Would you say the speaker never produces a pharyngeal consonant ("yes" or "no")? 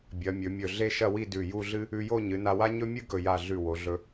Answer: yes